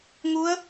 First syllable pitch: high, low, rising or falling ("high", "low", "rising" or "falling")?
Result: rising